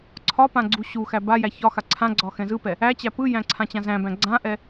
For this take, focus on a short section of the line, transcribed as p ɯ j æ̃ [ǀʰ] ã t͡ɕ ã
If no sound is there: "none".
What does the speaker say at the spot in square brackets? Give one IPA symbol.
ǀʰ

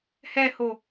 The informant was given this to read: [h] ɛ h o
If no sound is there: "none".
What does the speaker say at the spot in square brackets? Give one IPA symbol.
h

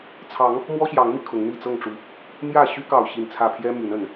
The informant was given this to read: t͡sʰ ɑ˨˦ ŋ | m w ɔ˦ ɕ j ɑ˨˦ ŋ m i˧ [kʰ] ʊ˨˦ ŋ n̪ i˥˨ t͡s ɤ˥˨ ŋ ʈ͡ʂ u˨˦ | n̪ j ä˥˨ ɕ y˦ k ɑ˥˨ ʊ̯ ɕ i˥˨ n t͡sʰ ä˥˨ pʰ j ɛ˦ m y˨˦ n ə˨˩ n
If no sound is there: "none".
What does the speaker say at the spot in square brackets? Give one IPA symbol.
kʰ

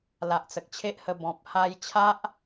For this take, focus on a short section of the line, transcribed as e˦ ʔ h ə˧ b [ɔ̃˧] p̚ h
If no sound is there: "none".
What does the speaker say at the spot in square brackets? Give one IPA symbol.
ɔ̃˨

